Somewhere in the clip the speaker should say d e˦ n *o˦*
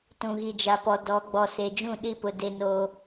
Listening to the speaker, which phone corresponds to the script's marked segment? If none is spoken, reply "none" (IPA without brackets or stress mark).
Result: oː˦